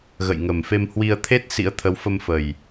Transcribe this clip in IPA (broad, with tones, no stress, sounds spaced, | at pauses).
ɣ ə̰˧˨ j ŋ ə˨˩ m f e˧ m h w i˧ ə̯ t̪ʰ e˦˥ t̚ s ḭ˧˥ ə̯ t̪ʰ ə˨˦ w f ə˧ m f ə˨˩ j